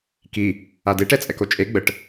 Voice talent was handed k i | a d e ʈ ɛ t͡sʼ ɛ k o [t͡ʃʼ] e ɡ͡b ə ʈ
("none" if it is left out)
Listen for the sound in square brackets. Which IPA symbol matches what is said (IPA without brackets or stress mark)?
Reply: t͡ʃʼ